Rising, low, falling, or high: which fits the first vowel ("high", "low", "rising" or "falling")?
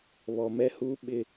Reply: low